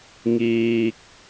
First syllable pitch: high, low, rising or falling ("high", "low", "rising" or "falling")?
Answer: low